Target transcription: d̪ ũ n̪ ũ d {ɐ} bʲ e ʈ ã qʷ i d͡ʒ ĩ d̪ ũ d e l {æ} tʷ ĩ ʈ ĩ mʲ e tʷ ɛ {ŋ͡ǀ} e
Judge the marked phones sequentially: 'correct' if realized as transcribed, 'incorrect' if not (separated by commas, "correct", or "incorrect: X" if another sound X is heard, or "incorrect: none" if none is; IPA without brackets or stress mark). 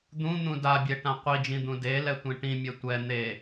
incorrect: a, incorrect: ɛ, incorrect: n̪